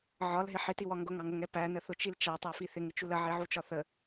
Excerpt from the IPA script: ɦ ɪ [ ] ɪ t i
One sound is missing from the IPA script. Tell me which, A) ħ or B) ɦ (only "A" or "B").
A